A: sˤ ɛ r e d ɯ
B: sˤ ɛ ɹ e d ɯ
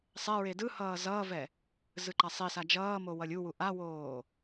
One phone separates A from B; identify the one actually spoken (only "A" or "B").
B